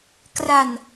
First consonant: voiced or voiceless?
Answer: voiceless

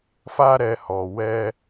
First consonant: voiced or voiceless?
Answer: voiceless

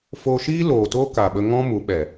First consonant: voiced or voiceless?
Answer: voiceless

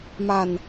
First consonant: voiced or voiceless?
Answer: voiced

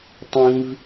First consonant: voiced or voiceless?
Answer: voiceless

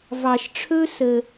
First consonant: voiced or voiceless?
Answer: voiced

